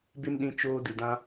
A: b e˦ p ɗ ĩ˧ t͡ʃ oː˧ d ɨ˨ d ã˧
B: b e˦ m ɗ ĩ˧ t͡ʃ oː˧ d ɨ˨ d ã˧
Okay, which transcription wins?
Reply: B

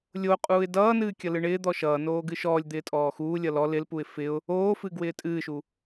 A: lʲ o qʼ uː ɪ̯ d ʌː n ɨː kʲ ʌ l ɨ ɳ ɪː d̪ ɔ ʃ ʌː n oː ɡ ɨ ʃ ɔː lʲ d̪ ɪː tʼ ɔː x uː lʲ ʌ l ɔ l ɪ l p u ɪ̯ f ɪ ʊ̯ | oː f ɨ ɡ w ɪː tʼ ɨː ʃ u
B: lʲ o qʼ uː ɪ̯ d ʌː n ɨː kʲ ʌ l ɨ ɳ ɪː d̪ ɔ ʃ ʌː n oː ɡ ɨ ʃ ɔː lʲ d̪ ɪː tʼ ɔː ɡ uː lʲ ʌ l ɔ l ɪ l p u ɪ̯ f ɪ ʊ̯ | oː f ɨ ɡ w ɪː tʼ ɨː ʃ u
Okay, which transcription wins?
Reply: A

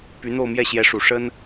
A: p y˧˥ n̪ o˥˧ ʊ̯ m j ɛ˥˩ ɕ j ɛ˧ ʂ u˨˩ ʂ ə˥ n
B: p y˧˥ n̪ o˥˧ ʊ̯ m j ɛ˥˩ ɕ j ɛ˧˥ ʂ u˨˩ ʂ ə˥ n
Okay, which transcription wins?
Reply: B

